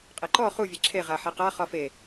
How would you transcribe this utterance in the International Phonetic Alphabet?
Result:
qʼ e ǃ ɔ χ u vʲ e ǁʰ e ʁ a ħ e q a χ ɒ f e

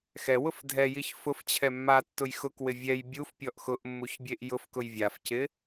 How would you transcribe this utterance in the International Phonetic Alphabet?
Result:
x ɛ w ʊ f dʱ ɛ j i ç f ʊ f t͡ɕʰ ɛ mː a tː ʊ j x ʊ k w ɪ vʲ ɛ j bʲ u f pʲ ɔ ʔ x ʊ ʔ mː u ç bʲ e ʔ j ʊ f k ʊ j vʲ a f c ɪ

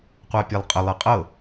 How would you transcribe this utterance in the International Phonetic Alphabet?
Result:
qʷ a pʲ e lˠ qʼ ə lˠ e qʼ ɤ

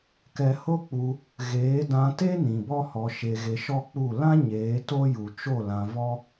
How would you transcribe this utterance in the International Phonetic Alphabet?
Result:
k ɛ˨ h o˦ k͡p u˧ | ɣ eː˨˦ d ã˧ t e˦ n ĩ˨ b ɔ˦ h ɔ˧ ʃ e˧ ɣ e˧ ʃ ɔ˦ k͡p u˦˨ l ã˦ ɲ eː˨˦ t o˦ j u˨ t͡ʃ o˦˨ l ã˧ v ɔ˦

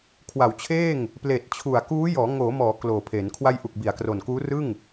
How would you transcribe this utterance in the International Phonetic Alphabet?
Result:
kʰ w a˩˦ w t͡ɕʰ eː˥˩ ŋ | p l eː˨˩ t̚ t͡ɕʰ u˨˩ a̯ k uː˦˥ j ɔː˩˦ ŋ oː˩˦ m ɔː˩˦ k l oː˨˩ pʰ e˩˦ n kʰ w a˧ j ʔ u˨˩ k̚ b i˩˦ a̯ k r o˨˩ n k uː˦˥ r ɯ˥˩ ŋ

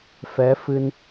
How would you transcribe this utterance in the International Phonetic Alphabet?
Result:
f ɛ˨˦ f ɨ˧ n

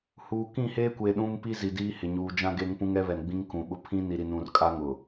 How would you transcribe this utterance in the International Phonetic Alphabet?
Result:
h uː˨ k ĩ˦˨ h eː˦ kʷ e˨ ɗ ũ˦ m p i˦ z i˨ d iː˦ h ɪ˨ ɲ uː˨ d͡ʒ ã˦ ɡ e˦ ŋ p ũ˦ ŋ ɛ˦ β ɛ˨ n ɡ͡b ĩ˦ ŋ k ũ˨ ɓ ʊ˦ pʰ ĩ˦ n i˨ ɾ i˨ n ũ˨ r kʼ a˦ ŋ ʊ˨

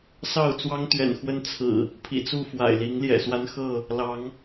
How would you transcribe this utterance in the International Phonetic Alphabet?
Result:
s ɑ˥˨ ʊ̯ t͡s w ɑ˦ ŋ t̪ ɥ ɛ̰˨˩ n x w ə˦ n t͡sʰ ɹ̩˨˩ | pʰ ḭ˨˩ t͡s u˥˨ f w a̰˨˩ ɪ̯ l i˨˦ ŋ l j ɛ̰˨˩ s w a˦ n x ɤ˥˨ | l ɑ˨˦ ŋ

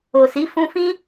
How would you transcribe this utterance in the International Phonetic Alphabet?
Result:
o˨ s i˨˦ f ũ˧ f ĩ˦

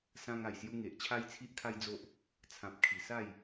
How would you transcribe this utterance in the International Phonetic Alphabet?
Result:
s ã˧ ŋ a˨˩ j s j u˧ ŋ e˨ ʔ t͡ɕʰ a˦ j t͡sʰ i˦ ʔ kʰ a˦ j d͡z o˦ ʔ | t͡sʰ ã˨ p̚ kʰ i˨˩ s a˥˧ j

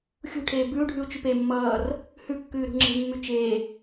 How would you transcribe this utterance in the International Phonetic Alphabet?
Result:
xʲ ṳ ʈʰ eː b ʉ u̯ ɖʱ ʉ u̯ t͡ʃ ʉ p e mː ʌː r | h ʉ kː ʉː ɾ ṳ ŋ͡ǁ e̤ mː ʉ t͡ʃ eː

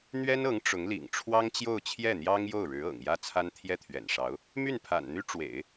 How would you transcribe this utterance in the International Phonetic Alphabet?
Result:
n̪ ɥ ɛ˥ n ɤ˧˥ ŋ ʈ͡ʂ ʊ˧˥ ŋ l ḭ˨˩ ŋ ʈ͡ʂʰ w ɑ˥ ŋ t͡ɕ j o˥˧ ʊ̯ t͡ɕʰ j ɛ˥˩ n̪ j ɑ˥ ŋ j o˥˩ ʊ̯ ɻ ɻ̩˧˥ ɤ̰˨˩ ŋ j ä˥˩ t͡sʰ a˥ n t̪ʰ j ɛ˥˩ t̪ʰ ɥ ɛ̰˨˩ n ʂ ɑ˧˥ ʊ̯ | m y˥˩ n pʰ a̰˨˩ n n̪ y˥ ʈ͡ʂ w ḛ˨˩˦ ɪ̯

